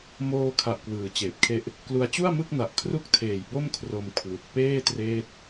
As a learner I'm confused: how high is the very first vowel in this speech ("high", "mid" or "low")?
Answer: mid